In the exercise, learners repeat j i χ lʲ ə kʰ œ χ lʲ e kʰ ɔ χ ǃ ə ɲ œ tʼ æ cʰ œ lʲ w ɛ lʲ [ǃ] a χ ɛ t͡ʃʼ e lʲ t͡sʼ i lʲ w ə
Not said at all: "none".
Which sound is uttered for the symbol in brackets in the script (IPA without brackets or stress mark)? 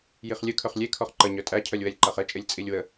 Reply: ǃ